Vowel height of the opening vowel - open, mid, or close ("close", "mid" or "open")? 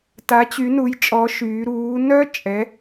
open